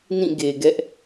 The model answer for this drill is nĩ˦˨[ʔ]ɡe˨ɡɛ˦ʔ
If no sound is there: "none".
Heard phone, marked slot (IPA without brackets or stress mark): none